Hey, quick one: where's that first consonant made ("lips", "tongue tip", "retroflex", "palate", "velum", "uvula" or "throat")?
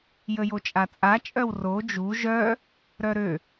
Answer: palate